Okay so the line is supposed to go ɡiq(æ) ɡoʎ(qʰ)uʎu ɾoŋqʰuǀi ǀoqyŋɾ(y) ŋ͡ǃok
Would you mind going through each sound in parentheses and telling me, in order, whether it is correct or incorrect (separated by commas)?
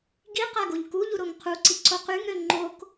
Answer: incorrect, incorrect, incorrect